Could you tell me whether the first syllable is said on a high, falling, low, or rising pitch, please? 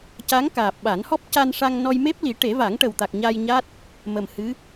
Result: rising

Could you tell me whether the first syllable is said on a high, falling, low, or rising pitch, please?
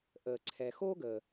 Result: low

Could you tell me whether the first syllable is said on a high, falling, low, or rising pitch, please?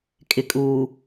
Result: low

